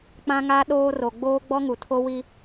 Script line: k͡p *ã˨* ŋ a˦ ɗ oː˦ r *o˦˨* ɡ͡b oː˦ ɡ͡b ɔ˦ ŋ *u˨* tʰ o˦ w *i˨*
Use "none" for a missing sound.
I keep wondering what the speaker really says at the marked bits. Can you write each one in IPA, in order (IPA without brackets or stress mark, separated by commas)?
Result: ã˦, o˨, u˨, i˦